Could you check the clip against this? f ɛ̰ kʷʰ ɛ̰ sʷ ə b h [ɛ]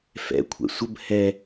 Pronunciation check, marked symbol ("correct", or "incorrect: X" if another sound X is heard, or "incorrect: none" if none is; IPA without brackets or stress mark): correct